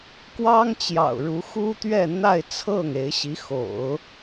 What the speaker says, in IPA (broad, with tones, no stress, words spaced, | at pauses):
kwɑ˥ŋt͡ɕjɑ̰˨˩ʊ̯ɻu˧˥ xu˥t̪ɥɛ˥˧n̪a˥˧ɪ̯t͡sʰɤ˥˩ŋ e˧˥ɪ̯ɕi˧˥ xo̰˨˩˦ʊ̯